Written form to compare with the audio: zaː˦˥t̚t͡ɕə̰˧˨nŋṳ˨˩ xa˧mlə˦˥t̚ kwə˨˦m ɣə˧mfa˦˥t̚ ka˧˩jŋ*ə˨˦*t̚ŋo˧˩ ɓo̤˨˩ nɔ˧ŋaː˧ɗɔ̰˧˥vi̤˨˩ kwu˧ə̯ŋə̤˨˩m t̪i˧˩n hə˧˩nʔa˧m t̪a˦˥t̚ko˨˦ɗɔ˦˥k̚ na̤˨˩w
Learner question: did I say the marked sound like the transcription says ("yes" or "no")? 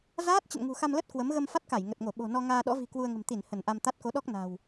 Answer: no